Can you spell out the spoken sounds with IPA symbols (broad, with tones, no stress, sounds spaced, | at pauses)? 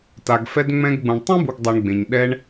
t a˨ ɡ f ɛ˧ d ŋ͡m ɛ̃˧ ɡ ɡ͡b ũ˨ ɳ tˤ ɛ̃˦ b u˨ ɡ dˤ a˨ ɳ ɡ͡b ẽ˨ ɲ ɗ ɛ˧ ɳ